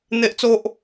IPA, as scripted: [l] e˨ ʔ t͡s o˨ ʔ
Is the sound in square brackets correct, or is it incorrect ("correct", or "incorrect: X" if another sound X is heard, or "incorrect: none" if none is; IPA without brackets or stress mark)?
incorrect: n̪